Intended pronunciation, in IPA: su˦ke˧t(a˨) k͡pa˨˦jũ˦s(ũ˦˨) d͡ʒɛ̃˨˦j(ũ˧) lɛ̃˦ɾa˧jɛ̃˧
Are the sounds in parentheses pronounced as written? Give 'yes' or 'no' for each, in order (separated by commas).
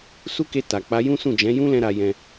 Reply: yes, yes, no